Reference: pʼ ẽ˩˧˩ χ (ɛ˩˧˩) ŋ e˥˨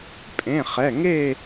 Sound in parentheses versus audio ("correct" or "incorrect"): correct